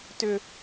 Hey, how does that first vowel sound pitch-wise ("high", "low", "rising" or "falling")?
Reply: high